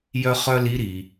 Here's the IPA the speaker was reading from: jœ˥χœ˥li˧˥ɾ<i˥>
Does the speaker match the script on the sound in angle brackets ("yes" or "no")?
no